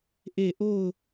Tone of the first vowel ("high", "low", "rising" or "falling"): falling